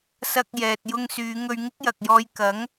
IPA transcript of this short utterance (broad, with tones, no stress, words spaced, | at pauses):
sɐ˧k̚ jɛː˨t̚jʊ˧ŋ syː˨˧ŋɵ˧ɥ ŋɪ˥k̚jɐ˨k̚jɔː˧j kɐ˨˥ŋ